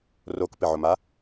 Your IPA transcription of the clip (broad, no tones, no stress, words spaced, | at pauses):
rokpɪʕʊma